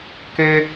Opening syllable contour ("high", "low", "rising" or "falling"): high